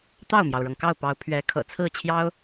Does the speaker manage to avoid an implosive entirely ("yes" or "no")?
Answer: yes